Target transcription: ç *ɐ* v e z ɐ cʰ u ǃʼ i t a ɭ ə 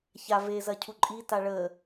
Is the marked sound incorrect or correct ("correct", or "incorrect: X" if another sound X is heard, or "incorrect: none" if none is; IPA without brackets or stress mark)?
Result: incorrect: a